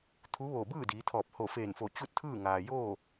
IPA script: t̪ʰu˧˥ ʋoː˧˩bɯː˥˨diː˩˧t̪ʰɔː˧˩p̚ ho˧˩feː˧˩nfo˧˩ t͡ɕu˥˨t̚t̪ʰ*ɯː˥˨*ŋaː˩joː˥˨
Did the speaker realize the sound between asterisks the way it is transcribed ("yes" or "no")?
yes